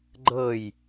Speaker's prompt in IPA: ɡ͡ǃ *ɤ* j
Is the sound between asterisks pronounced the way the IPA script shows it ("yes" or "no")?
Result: yes